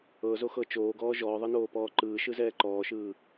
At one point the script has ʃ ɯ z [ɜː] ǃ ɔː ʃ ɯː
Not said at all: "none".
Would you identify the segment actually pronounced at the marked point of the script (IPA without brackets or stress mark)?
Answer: ɛː